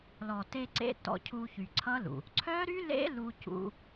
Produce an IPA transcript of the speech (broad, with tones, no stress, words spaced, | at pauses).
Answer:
lɔ˨te˧ǀḛ˧ tɔ̰˧cʰu˧ çy˨ǀʰʌ˦lṵ˨ | ǀʰœ˦ɾy˦ lḛ˦lu˧cṵ˧